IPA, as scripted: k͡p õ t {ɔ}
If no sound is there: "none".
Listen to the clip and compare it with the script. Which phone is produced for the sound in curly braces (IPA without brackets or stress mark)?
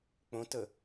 ə